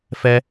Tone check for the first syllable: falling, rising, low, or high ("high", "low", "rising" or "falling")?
high